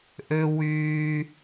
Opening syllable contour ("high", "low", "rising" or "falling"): high